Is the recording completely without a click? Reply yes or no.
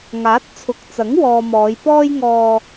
yes